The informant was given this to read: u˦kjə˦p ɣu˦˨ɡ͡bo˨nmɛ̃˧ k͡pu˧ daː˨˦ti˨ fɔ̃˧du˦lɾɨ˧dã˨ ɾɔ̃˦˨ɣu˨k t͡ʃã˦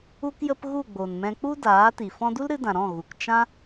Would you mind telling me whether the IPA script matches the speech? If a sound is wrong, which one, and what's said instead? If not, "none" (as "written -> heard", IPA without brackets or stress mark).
none